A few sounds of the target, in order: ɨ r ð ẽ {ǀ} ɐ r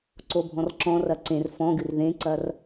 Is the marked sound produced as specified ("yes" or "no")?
yes